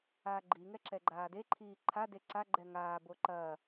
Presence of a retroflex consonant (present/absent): absent